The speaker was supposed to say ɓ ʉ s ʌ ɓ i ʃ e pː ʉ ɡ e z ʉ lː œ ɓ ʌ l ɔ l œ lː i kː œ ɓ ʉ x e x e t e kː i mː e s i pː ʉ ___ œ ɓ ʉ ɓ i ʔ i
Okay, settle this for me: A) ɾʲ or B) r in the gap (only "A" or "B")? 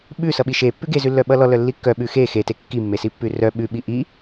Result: B